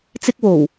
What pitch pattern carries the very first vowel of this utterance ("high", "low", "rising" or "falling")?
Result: high